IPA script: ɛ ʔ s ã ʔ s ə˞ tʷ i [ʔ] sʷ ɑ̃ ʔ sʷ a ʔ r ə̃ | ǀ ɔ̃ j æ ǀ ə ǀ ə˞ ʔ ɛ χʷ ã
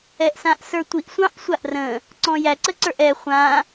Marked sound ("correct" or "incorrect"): correct